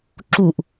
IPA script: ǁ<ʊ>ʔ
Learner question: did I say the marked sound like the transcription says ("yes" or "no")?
no